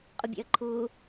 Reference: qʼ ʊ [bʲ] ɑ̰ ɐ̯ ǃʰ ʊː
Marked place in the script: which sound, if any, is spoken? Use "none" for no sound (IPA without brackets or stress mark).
bʲ